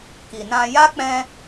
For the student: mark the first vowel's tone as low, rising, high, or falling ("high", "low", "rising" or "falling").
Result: low